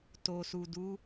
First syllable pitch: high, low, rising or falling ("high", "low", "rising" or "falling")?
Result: low